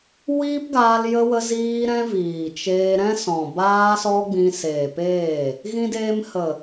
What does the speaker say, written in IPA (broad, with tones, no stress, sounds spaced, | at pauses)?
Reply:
w iː˦ p ɡ aː˧ l j ə˧ w ə˧ z iː˧ ɾ ɛ̃˦ v iː˨ t͡ʃ eː˧ ɾ ɛ̃˦ s ɔ̃˨ b aː˧ s ɔ˧ ɡ͡b ĩ˧ s eː˨ p eː˦˨ | ɣ ĩ˦ d eː˦ m h ə˨